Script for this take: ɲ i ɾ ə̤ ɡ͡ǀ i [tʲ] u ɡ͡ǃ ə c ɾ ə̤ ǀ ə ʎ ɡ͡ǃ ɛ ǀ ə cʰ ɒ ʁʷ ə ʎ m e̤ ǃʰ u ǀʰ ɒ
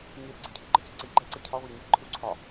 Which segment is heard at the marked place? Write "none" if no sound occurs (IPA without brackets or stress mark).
cʰ